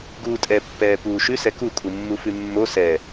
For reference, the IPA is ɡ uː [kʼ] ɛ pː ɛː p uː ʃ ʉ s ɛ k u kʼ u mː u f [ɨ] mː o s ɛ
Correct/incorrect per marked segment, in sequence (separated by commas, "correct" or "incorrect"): incorrect, incorrect